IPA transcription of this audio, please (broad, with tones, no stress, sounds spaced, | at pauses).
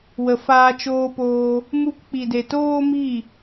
w ə˨ f aː˧ t͡ʃ oː˧ p oː˧ | m u˧ k k͡p i˨ d e˨ t oː˦ m i˦˨